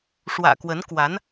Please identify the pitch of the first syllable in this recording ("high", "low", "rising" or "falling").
low